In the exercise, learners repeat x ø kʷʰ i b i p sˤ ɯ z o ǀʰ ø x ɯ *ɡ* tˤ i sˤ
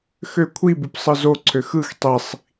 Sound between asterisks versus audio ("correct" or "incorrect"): incorrect